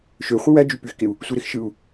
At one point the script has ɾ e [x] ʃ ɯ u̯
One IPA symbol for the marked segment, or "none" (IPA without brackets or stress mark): x